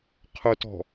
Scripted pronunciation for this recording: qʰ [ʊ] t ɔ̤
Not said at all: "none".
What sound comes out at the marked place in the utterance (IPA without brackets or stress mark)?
ʊ